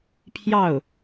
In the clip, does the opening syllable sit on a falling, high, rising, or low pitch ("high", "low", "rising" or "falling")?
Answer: falling